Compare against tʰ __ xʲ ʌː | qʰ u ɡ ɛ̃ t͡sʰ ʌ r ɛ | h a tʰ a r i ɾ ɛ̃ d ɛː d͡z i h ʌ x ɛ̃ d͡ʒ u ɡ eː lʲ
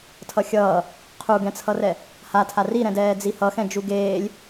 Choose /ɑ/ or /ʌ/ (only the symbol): ʌ